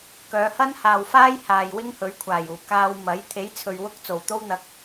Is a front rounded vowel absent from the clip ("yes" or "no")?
no